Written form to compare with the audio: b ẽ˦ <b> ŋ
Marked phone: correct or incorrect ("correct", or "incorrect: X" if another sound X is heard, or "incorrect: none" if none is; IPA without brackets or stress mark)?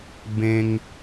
incorrect: none